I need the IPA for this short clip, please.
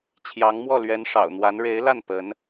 t͡ɕʰ j ɑ˧˥ ŋ m w ɔ˥˩ l ɥ ɛ˧˥ n ʂ ɑ̰˨˩ ʊ̯ n̪ w a˧˥ n ɻ e˧˥ ɪ̯ l a˥˩ n p ə˧˥ n

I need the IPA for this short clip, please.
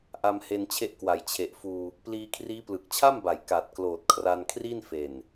ʔ a˧ m h e˧ n t͡ɕʰ e˦˥ ʔ k w a˩˦ j t͡ɕʰ e˨˩ ʔ f uː˧ | p l iː˧ kʰ r iː˦˥ p l ɯ˨˩ k̚ t͡ɕʰ a˥˩ m b a˩˦ j k a˨˩ t̚ k l oː˨˩ t̚ kʰ r a˧ n kʰ r i˥˩ n f e˨˩ n

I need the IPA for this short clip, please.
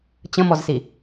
t͡ɕ ə̃ m ɔ z s i

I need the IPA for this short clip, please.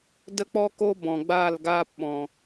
d ə˦ k͡p ɔ˦ k oː˦ b ɔ̃˨ ɡ͡b aː˦˨ l ɡ aː˦ p ɓ ɔ̃˨

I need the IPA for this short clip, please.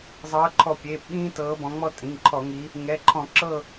zˤ ɤː˨˦ ǃʰ ɔ˧˩ pʲ eː˩˧˩ p ɓ ĩː˦ t ɤː˨˦ b ɔ̃˨˦ ŋ͡m ɔ˦ tʼ ĩ˩˧˩ ŋ ǃʰ ɔ˧˩˧ ŋ i˨˦ | ŋ ɛ˩˧˩ ǃʰ ɔ̃˧˩˧ ǁ ɤ˥˨

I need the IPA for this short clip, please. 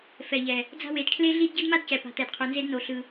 f ɛ˨ ʎ ɛ˨ | d͡z a̤˦ w e˨˦ d kʰ l e˦ ɮ i˦ d ɟ ɯ˦ d m a˦ d c ɛ˨ p a̤˨ t̪ ɛ˨ d qʰ u˨ n z e˦ d n o˨ ɬ ɯ˨

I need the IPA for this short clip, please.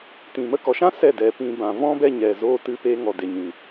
t ĩ˧ m ə˧ k ɔ˨ ʃ ã˦ s ɛ˦˨ d ɛ˨˦ p ĩ˧ b ã˨ v ɔ̃˦ b ɛ˧ ɲ ɛ˨ z oː˧ t ɨ˧ p e˧ ŋ ɔ˨ d e˨ ɲ ĩ˨

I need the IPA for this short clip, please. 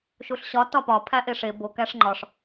ʃ u ɬ ɕ ɒ t ɒ p ɒ pʰ æ ʔ e ʂ e b o k æ ʂ ŋ͡ǃ ɒ ʂ

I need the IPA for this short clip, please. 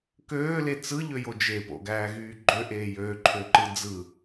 k øː l e t͡s ɯ ʎ ø j o d͡ʒ e p o̰ ɡ æː ɣ yː ɡ͡ǃ ø ʔ eː j øː ǃʰ ø ǃ ɯ d͡z ɯ

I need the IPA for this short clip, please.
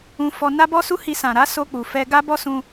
ũ˧ f ɔ˧ n a˦ b ɔ˦ s u˦ h i˧ s ã˨ ɾ a˨˦ s o˧ k͡p u˨ f ɛ˧ ɡ a˦ b ɔ˦ s ũ˧

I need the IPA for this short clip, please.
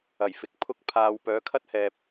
ɐ˨˩ j f ɪ˨ k̚ pʰ ʊ˥ k̚ pʰ aː˧ w p œː˨˥ kʰ ɐ˥ t̚ h ɛː˨ p̚

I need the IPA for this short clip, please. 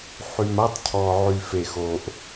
ħ y˨ m a˦ tˤ cʰ ɔ˨ ʕ y˨ f e˨ x o˨ ʔ

